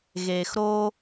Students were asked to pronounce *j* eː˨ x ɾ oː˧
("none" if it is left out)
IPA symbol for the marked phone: ɣ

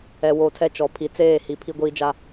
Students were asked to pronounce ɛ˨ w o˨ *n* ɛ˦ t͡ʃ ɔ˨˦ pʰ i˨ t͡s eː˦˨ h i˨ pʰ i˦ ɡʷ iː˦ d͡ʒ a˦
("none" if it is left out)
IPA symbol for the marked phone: tʰ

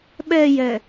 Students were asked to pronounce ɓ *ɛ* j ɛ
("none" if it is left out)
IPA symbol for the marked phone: ɛ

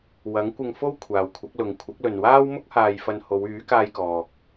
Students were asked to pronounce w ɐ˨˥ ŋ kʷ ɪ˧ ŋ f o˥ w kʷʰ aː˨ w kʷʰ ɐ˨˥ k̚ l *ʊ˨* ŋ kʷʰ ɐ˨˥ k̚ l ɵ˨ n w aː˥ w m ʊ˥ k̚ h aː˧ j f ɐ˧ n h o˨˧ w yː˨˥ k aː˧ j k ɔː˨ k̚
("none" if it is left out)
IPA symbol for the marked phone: ʊ˨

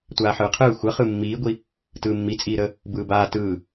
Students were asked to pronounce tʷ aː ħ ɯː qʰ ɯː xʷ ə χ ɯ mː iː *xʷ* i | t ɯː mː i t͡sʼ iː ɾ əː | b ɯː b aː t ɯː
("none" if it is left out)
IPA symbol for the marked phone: ɡʷ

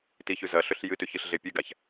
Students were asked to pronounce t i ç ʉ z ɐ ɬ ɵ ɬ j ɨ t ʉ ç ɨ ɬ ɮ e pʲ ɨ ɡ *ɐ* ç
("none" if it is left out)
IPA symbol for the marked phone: a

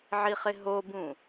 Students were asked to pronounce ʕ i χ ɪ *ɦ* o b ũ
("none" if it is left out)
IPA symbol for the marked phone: ɦ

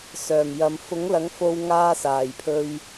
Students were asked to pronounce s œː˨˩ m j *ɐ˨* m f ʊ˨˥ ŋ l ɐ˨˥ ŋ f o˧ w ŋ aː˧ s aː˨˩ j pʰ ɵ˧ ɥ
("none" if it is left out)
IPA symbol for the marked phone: ɐ˨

